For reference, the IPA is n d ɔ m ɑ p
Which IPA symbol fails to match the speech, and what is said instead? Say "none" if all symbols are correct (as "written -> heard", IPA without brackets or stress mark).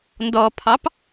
m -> pʰ